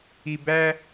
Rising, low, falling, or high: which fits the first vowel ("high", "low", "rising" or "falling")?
low